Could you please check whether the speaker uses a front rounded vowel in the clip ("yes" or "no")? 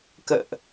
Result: no